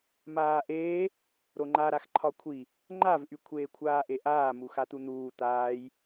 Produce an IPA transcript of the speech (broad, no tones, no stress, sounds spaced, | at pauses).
m aː ʔ eː | ɾ o ŋ͡ǃ a ɾ a x ǃʰ ɒ kʷʰ i | ŋ͡ǃ a v ʔ y kʷʰ eː kʷʰ aː ʔ e ʔ aː m u x a t̪ u n̪ uː t̪ aː j